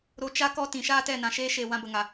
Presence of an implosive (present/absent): absent